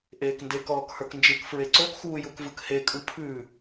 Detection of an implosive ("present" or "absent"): absent